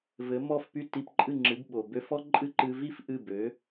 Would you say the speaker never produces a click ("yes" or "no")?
no